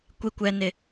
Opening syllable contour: low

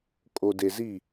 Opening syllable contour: low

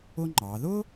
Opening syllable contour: high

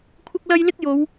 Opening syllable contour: high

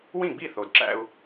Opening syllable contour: falling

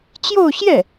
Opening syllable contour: falling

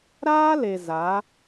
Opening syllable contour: high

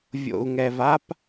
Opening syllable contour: low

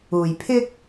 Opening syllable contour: low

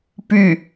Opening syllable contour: falling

